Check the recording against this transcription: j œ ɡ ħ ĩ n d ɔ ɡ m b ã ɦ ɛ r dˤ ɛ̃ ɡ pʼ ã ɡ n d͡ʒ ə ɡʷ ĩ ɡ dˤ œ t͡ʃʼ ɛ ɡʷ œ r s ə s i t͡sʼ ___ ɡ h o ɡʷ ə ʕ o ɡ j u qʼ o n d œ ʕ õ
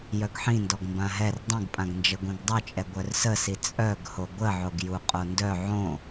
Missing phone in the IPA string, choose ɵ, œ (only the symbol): œ